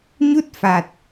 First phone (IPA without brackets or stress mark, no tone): ɲ